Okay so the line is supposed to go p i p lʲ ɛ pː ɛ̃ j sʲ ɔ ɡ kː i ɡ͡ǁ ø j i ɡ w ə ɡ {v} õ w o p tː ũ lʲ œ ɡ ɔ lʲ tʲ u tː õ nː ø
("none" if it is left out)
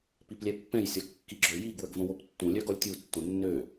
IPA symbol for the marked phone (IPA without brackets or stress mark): v